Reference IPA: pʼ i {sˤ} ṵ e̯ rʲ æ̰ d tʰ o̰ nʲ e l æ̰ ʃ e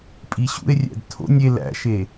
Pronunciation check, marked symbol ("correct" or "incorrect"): incorrect